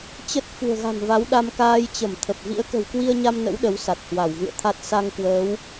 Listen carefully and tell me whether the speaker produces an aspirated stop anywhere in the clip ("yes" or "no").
yes